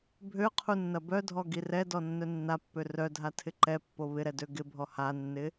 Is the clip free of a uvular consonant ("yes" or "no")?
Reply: no